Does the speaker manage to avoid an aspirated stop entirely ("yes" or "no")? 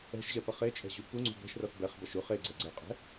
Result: yes